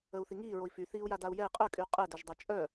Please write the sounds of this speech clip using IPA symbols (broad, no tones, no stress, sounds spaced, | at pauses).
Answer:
ə u̯ θ i ŋ iː ɹ o i̯ f y θ iː u̯ j a d a u̯ j ɛ i̯ qʼ œ kʼ yː qʼ ɛ d œ ʒ dˤ a t͡ʃʼ œ